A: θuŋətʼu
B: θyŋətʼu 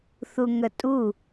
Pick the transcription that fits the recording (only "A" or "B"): A